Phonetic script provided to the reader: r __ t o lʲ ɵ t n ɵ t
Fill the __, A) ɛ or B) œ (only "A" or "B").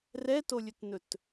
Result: A